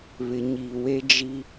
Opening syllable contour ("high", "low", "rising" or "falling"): low